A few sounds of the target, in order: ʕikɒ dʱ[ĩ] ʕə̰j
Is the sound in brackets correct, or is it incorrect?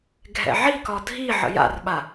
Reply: incorrect